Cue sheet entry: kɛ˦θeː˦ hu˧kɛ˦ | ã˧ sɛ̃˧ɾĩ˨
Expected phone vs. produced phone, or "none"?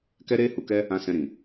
θ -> ɾ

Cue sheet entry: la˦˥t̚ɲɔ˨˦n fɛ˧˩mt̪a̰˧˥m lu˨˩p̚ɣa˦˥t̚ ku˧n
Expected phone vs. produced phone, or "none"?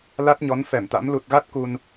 p̚ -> t̚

